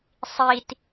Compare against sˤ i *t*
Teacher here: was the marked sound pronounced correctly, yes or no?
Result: yes